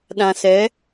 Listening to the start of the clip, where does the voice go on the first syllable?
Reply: low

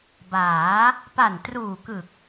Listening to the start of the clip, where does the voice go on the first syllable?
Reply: rising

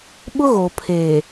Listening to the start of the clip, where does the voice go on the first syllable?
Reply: high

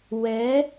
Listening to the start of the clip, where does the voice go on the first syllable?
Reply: rising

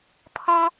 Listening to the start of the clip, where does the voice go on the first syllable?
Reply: high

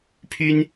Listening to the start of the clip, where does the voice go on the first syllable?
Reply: high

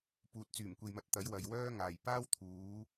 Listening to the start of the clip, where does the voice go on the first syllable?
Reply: low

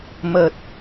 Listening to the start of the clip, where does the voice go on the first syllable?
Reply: low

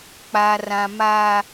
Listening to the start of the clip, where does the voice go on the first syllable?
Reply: high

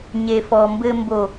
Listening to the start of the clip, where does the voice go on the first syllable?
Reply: low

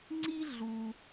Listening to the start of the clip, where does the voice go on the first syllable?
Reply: high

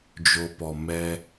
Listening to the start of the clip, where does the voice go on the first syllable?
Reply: low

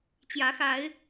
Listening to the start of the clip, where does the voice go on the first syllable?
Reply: rising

